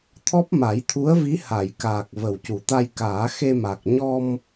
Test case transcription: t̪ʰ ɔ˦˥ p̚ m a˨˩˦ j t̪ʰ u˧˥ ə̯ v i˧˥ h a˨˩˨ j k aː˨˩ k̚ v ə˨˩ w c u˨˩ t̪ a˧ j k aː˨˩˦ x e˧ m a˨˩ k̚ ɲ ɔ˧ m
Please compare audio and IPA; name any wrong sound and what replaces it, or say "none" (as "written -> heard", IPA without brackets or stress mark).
none